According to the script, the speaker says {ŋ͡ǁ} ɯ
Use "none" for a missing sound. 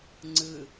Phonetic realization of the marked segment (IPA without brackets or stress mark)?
ŋ͡ǀ